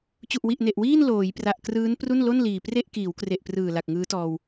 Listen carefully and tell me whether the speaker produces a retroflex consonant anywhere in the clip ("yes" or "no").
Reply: no